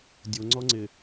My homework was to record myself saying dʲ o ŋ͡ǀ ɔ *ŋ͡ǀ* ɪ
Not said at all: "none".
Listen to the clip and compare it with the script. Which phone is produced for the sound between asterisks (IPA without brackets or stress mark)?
ŋ͡ǀ